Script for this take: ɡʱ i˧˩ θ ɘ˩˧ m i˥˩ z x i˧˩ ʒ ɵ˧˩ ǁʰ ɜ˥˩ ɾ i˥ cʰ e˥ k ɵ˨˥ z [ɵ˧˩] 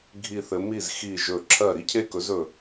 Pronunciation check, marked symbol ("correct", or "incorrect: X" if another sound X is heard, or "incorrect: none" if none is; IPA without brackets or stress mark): correct